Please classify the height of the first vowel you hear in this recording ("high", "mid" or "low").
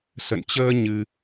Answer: mid